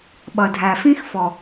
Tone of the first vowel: low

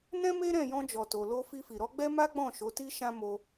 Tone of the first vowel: high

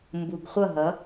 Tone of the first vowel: low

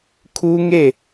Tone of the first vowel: high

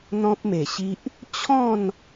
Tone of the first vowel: high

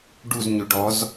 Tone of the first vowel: falling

